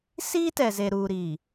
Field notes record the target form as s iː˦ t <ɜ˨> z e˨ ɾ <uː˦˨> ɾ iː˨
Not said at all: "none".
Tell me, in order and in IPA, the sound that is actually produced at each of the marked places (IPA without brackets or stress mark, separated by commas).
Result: ɛ˨, uː˨